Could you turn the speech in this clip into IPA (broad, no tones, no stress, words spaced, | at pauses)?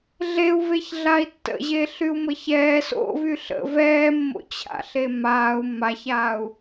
ɮeu̯veç ɮai̯tːə̰ʑeː ɬyu̯məçɛː so̰vy ɬə̰ vɛːmːo̰t͡ɕʰa̰ɬe maːu̯ maçaːu̯